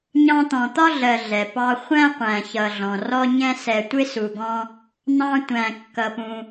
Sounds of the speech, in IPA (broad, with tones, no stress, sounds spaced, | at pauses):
ɲ ɑ̃˦ t̪ ɔ̃˨ t̪ ɒ˥ ɮ ɜ˨ ɮ ɛ˩ p ɑ˦ χʷ æ̃˥ qʷ æ̃˨ ç ʌ˨ ɮ ɔ̃˩ r ɔ˦ ɲ ɛ̃˦ s ɛ˨ tʷ ɪ˥ s u˨ ɡ ɔ̃˦ | n̪ ɑ̃˦ tʷ æ̃˨ kː ʌ˨ p ũ˨